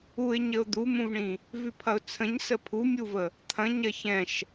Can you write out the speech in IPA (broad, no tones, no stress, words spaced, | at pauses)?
uɪ̯ɲəʊ̯ d̪umũvɳĩ | vʉpʰɐʊ̯t͡sʰə̃ɲsə pʰumʲuvə | t̪ʰɐ̃ ɲɐçɛ̃ʃ